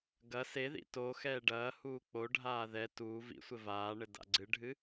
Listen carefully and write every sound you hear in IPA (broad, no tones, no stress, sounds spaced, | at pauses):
ɡ ɐ s e ð ḭ t o x ɛː ɖ ɐː h uː k͡p o ɖʱ aː ð ɛ t uː v ḭ sʷ ɘ v aː ɳ ɘ d a̰ ɡ͡ǀ ɨ ɖʱ ɨ